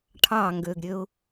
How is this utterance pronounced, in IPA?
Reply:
ʈʰ ɑ ŋ ɡ ø ɡ ɾʲ ø ʊ̯

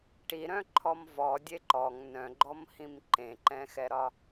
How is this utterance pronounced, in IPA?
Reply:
ʈ i ɾ œ̃ ǃʰ ɔ m v ɔ dʲ e ǃ ɔ ŋ n œ̃ ɡ͡ǃ ɔ m h ĩ m ǃ ẽ ǃ ɛ̃ x ɛ ɾ ɒ

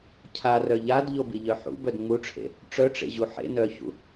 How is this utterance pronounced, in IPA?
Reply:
cʰ a r œ ʎ a d ʎ o b i ʎ œ ħ ṵ b œ d ŋ͡m u ʈ͡ʂʰ ḛ | ʈ͡ʂ œ ʈ͡ʂ ḛ ʑ u ħ ḛ n œ ç ṵ

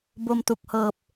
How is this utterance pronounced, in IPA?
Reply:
b o˧ m t u˨˩ k̚ h ɤː˨˩ p̚

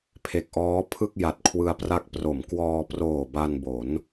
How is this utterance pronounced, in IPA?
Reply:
pʰ e˨˩ k̚ ʔ ɔː˦˥ pʰ ɯ˥˩ k̚ j a˨˩ t̚ kʰ w ɯ˧ a̯ p r a˦˥ k̚ p r o˩˦ m k w ɔː˧ p r oː˨˩ b a˧ n b o˩˦ n

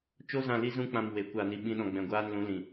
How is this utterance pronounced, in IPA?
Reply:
t͡ʃ o˦ z ã˧ l i˦ z ũ˦ k͡p ã˧ m w e˨˦ kʷ aː˧ n i˧ ɓ ĩ˦ ɗ ɔ̃˧ ɡ͡b ɛ̃˧ ɡʷ aː˦ n l ũ˨˦ l ĩ˨

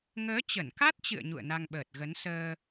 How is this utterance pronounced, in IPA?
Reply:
ŋ əː˨˦ t͡ɕ ə˧˩ n k a˦˥ t̚ t͡ɕ ɨ̰˧˨ ə̯ ɲ ṵ˧˨ ə̯ n a˧ ŋ ɓ əː˨˩ t̚ ɣ ə˨˦ n s əː˧

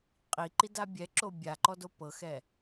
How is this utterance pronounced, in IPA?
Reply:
qʼ i ǃ i d a bʲ ɛ ǁ o bʲ a ǃ ɔ d o p ɤ x ɛ

